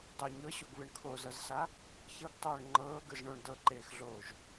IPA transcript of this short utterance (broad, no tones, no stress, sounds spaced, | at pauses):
dˤ o ɲ ɤ ɕ o ɡ β ɯ ɳ kʰ o z ɤ z s a | ç ɤ ɡ tˤ oː ɳ ŋ͡ǃ ɤː ɡ ɯ z ɳ o ɳ d ɤ ǃ eː x ɮ oː ʒ